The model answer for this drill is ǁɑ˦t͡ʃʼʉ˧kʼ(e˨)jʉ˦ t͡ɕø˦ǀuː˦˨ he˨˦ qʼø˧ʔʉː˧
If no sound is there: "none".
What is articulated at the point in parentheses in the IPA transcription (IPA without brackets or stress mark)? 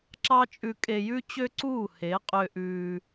e˧